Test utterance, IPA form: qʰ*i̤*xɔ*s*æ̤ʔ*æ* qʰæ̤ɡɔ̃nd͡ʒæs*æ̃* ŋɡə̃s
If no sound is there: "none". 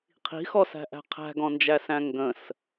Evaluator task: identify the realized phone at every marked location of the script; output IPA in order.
i̤, s, æ̤, æ̃

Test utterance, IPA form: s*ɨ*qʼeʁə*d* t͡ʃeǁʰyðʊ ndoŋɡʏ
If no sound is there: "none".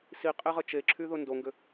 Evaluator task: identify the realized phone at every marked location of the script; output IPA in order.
i, none

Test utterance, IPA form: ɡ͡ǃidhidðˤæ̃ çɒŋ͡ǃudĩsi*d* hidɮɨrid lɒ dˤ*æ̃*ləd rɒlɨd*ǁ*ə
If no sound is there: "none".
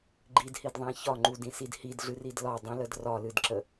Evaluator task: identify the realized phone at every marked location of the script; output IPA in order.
d, ə̃, ǁ

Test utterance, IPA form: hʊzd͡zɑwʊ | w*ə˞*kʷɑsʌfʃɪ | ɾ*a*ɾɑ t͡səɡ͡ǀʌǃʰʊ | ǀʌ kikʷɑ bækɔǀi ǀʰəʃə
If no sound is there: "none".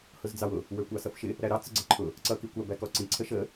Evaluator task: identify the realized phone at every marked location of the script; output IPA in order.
ə˞, æ

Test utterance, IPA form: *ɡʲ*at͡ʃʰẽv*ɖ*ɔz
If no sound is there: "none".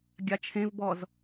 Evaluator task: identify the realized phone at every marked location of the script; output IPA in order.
ɡʲ, b

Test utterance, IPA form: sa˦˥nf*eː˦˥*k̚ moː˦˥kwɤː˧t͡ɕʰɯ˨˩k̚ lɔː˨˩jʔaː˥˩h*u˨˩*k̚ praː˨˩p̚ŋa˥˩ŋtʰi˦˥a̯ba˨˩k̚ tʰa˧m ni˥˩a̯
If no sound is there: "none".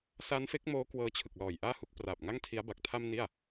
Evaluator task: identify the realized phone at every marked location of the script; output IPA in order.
e˦˥, u˦˥

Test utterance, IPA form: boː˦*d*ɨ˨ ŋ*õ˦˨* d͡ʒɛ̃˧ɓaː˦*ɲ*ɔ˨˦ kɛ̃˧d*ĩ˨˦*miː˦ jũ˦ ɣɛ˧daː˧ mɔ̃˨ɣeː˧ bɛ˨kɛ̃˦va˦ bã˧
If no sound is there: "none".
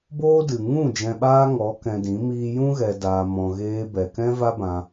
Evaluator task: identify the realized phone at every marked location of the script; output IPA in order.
d, ũ˦˨, ŋ, ĩ˨˦

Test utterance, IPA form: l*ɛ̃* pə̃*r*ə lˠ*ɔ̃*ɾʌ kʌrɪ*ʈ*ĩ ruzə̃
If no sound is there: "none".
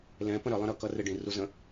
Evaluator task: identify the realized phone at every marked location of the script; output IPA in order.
ɛ̃, ɾ, ə̃, ɖ

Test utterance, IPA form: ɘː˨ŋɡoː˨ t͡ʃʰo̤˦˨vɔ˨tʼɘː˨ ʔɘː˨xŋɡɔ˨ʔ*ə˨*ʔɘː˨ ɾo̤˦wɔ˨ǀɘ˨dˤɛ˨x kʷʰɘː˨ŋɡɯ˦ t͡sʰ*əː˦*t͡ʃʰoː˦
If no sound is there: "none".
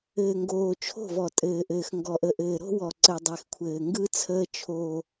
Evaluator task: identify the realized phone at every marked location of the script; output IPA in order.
ə˨, əː˦

